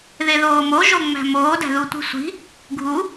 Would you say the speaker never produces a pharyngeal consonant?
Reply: yes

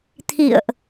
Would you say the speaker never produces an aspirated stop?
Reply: no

